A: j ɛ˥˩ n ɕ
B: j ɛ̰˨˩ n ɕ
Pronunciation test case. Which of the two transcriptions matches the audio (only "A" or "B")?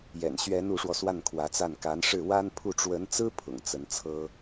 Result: B